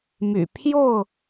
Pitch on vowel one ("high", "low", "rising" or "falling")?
low